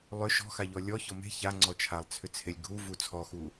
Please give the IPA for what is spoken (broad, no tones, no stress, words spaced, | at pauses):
lˠʏ ʃɔ̤xaʎɔ lʲɔçɔ me̤ çaŋ͡ǀɔ t͡ʃʰalˠt͡sʰʏt͡sʰelʲ ɡʱuvu t͡sʰɔxu